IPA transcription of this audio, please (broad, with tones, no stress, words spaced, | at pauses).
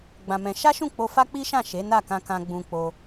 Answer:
ɡ͡bã˧mɛ̃˧ ʃa˦ʃũ˦˨k͡po˧fa˦ k͡pi˦ʃã˦˨ ʃe˨˦na˦˨kã˧kã˧ ɡ͡bũ˧ k͡po˧